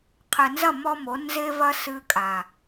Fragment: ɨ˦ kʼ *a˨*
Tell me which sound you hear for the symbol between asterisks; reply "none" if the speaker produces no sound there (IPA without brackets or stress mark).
a˨